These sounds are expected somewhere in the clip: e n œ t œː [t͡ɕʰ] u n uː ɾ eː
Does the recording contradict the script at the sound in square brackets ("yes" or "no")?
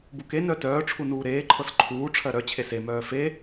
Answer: yes